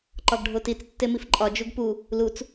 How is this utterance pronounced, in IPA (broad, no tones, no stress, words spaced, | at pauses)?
ǃɒɡɖʱotit͡s tːemifǃʼɒ d͡ʒuɡpu | lut͡s